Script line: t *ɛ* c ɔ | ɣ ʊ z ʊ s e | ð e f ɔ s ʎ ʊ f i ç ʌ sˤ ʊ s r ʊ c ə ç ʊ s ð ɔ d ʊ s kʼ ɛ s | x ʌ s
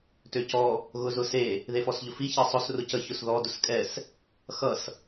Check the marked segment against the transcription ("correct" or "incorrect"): incorrect